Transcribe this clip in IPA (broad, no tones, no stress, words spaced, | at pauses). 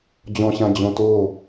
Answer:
d͡ʑɔ̃ɕãd͡ʑõ to